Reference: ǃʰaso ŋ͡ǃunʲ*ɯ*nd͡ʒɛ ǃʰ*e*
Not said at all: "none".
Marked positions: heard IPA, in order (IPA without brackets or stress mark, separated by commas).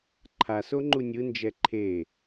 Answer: ɯ, e